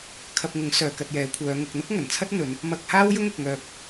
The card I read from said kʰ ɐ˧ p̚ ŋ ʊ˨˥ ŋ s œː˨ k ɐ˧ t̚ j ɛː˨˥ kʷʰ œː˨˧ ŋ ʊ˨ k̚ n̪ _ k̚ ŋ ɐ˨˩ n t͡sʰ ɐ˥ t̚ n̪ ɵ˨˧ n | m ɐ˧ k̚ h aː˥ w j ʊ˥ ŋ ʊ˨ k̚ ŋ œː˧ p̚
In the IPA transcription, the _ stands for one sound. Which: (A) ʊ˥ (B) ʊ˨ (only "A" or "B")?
A